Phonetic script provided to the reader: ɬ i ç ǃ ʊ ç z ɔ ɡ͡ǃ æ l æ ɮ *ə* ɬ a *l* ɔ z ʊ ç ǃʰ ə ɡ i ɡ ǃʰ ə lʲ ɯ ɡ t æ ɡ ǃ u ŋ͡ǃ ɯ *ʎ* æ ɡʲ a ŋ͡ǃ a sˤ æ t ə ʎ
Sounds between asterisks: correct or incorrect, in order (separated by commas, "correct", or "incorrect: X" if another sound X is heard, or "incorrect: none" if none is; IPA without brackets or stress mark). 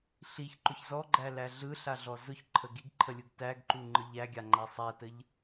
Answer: incorrect: ɯ, incorrect: ɮ, correct